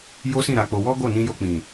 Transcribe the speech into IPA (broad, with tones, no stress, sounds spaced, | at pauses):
j o˦ s ĩ˦˨ ɾ a˨˦ k͡p o˧ w ɔ˦ ɡ o˦˨ n ĩ˧ j o˧ k͡p ĩ˨